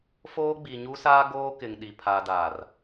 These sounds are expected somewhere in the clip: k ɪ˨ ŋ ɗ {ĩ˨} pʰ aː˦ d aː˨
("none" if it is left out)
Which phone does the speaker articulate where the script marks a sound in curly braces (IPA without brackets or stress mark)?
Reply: i˨